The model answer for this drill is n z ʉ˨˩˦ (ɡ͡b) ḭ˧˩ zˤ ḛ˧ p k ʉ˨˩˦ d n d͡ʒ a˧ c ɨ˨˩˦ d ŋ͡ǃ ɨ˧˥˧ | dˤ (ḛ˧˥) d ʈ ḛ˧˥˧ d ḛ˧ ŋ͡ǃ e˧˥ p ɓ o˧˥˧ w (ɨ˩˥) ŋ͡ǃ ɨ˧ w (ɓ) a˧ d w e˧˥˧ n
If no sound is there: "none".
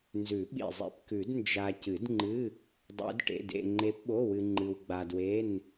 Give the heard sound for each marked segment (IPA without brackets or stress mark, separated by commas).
ɓ, ḛ˧˥, ɨ˧, ɡ͡b